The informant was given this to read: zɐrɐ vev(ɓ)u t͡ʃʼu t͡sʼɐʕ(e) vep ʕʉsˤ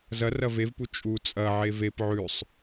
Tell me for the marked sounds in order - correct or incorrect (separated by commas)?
incorrect, correct